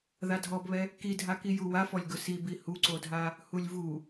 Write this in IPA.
ð a dʱ ɔ b β ɛ | k i dʱ a k i j u w a f ɔ lʲ ɡ ʊ s i b i h u ǀ o dʱ a | h u lʲ v u

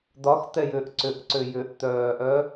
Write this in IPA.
d̪ ɒ x t̪ ɛ j ʏː ʔ ǀ ʏ ʔ ǀ ʏ j ʏ ʔ t̪ œː ʔ œ

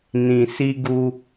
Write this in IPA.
n ĩ˨ s i˧ ɡ u˧

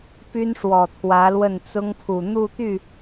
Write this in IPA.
p y˥ n ʂ w ɔ˨˩ t̪ʰ w ä˧˥ l w ə˥˩ n t͡s ʊ˥ ŋ pʰ u˨˩ n̪ u˥˧ t̪ y˥˩

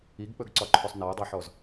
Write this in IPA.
i ɡ k͡p ɵ ɡ ǀ ɒ ǃʰ o sˤ n a ə̯ dˤ æ ħ ɔ z

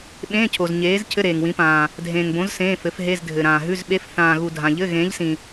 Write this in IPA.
ɓ ẽː˧˥˧ cʰ o˨ z ɲ eː˨˥ z cʰ ɘ˧˥˧ ɾ eː˨ ŋ w ĩ˨˥ p ãː˨ | dʱ ẽː˨ ŋ b õ˨˥ z s ẽː˧˥˧ f ɘ˨˥ f ɦ e˧˥˧ z dʱ ɘ˨ ɾ ãː˨ ɦ ʉ˧˥˧ z ɓ e˧˥˧ f θ ãː˨ ɣ u˨ dʱ ã˨ ʎ ɘ˧˥˧ ɣ ẽː˨˥ ʎ s ĩ˨

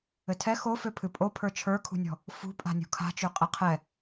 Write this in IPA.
ɘ tʰ ɛ x o f ø pʰ ɨ pʼ o pʰ ə˞ t͡ʃʰ ə˞ kʰ ṳ nʲ ɔ̤ | f ṳ pʼ a̤ nʲ ṳ kʰ a̤ t͡ʃ ø qʼ ɘ qʰ ɛ

